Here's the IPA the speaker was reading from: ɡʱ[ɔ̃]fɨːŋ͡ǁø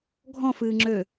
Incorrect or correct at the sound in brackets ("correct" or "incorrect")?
correct